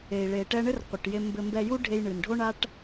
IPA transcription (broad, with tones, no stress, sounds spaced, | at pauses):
e˩ i̯ ɭ e˩ ʈ ɛ˧ ɳ ɘ˥ r qʷ ɨ˩ ʈ j e˧ m b ɘ˧ m b ɛ˧ j u˥ ɖʱ e˧ j ɳ ɨ˩ n ɖʱ o˥ ɳ a˥ ʈ